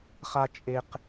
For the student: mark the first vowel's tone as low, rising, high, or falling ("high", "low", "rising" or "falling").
low